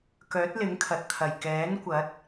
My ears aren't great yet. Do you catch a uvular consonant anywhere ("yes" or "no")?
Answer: no